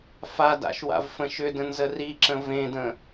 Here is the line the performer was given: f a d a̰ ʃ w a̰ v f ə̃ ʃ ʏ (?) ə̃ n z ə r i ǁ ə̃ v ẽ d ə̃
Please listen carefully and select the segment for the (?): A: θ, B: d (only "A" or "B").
B